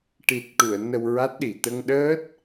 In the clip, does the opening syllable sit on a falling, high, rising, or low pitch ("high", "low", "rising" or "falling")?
low